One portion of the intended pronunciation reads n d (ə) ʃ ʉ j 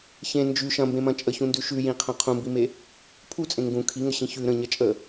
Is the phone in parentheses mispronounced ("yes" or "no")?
yes